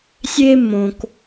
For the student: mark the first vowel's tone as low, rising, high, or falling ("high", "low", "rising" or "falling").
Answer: high